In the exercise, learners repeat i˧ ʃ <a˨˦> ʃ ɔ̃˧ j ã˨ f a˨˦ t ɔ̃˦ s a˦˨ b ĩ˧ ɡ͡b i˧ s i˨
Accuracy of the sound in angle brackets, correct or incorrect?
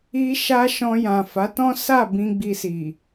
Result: incorrect